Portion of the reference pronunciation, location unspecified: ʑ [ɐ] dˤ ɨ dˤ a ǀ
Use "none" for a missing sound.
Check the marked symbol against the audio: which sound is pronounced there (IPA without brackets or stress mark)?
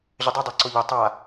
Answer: ə